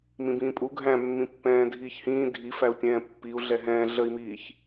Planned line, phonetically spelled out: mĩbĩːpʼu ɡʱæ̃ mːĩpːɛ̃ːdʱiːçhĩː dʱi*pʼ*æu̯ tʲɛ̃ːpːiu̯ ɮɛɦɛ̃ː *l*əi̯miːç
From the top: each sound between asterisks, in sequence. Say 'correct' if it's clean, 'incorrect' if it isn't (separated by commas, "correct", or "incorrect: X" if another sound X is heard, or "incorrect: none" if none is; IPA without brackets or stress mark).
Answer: incorrect: f, incorrect: ɮ